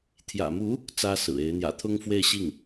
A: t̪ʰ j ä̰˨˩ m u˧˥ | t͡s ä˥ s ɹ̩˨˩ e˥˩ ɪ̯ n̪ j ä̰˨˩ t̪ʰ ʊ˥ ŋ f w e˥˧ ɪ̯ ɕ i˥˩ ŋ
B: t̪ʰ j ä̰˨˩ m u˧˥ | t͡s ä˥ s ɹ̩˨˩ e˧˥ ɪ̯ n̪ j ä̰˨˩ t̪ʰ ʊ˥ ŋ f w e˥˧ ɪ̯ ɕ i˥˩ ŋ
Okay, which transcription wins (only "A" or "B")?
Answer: B